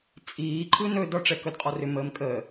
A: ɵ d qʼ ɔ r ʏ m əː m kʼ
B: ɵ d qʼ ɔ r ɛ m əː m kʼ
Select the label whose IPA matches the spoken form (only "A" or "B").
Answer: A